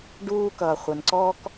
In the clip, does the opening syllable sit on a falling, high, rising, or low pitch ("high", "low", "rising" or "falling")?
high